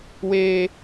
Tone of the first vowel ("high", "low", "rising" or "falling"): high